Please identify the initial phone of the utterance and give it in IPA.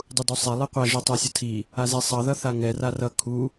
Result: dˤ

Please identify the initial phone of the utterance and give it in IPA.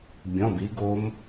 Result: bʲ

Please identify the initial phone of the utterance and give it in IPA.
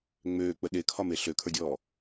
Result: ŋ͡m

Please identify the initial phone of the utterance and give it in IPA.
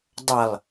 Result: dˤ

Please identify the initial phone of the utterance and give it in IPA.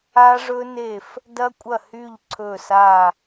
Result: a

